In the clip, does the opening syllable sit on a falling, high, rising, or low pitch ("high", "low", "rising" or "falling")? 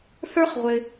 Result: high